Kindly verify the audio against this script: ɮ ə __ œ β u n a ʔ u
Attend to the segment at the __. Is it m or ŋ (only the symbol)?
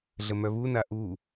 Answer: m